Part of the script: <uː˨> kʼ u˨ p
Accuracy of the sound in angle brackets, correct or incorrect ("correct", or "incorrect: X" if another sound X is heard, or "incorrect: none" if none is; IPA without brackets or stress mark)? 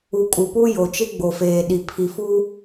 incorrect: u˨